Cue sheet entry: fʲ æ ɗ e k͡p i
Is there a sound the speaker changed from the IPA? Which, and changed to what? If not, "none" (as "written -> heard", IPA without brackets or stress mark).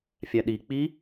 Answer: e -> i